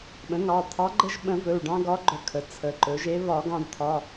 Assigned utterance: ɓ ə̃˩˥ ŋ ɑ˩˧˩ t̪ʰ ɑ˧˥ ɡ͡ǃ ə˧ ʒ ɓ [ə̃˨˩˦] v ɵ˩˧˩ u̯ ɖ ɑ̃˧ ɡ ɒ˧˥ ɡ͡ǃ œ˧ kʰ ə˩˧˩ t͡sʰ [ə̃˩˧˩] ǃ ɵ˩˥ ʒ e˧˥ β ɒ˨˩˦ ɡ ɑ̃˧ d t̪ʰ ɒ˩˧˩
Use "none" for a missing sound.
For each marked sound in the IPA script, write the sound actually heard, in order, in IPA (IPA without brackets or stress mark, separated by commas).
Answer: ə̃˨˩˦, ə˩˧˩